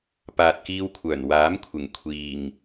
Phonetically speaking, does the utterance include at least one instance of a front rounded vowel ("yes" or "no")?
yes